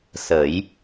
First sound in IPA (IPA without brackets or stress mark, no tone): s